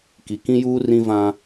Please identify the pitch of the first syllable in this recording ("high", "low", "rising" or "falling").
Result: rising